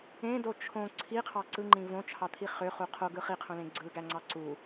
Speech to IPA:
ẽdo t͡ʃʰõ ǀʰiqʰɑ ǀɯŋ͡ǃĩ võt͡ʃʰɑt̪ʰi χøχu qʰoɡɯ χiqʰõlẽ ɡ͡ǀɯɡæŋ͡ǀɑ ǀu

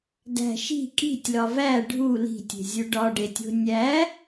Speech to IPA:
dæ̤ ʃi̤ kʼi̤tʲlɒ væ ɖʱu li̤tʲe̤zʲu ɖɒɖetʲo̤ nʲæ

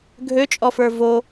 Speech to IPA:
ɡʱøt͡ʃʼɔfə˞ vo

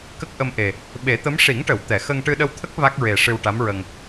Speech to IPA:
kə˦˥k̚ʔə˧mʔe˨˩ | ɓe˨˩˦t̪ə˧˥m ʂi˨˩˦ŋʈə˨˩˨w t̪ɛ˨˩˨ xə˧ŋ ʈɨ˧ɗə˧wt̪ʰə˦˥k̚ va˦˥k̚ɹe˨˩ ʂɨ˧wʈa˧˥mɹə˧ŋ

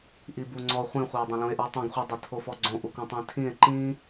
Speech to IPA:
ʔibuŋ͡ǀɔ χʷĩχʷio̯ dˤõlũe̯ʔə˞tˤũɡ χʷədˤətʰofɔ ɡ͡ǀõʔukũtˤĩ tʰĩe̯ ǃĩ

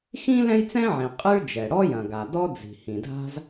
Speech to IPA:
xĩ˥ lɛ̃˥jt͡sɛ̃˥ʕĩ˩ qʼɨ˥ɭd͡ʒɛ˩ ɽɔ˥jɐ̃˩ɡa˩ dɔ˥d͡zi̤˩ hĩ˩dʱa̤˥z

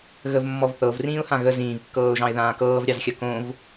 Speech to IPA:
ɣəvmːɔv θɤvrĩːʊ̯hã ɣə zĩːvkːɤːʊ̯ʒɑ̃ɪ̯ ðãːkɤːvɾʲɑzxʲɐ kõv

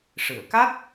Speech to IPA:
ʂɨ˨˩˨ə̯ ka˦˥t̚

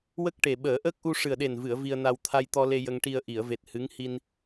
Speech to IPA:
wə˦˥k̚ʈe˨˩ ɓəː˨˩˦ʔəː˦˥k̚ʔu˧ ʂɨ˨˩ə̯ɗe˨˩nvɨ˨˩˨ə̯ vi˧ə̯na˧w t̪ʰa˧jt̪ɔ˧le˧ jə˧ŋʈi˧ə̯ ʔi˨˩˨ə̯ve˨˩t̚ hɨ˧˥ŋ hi˧n

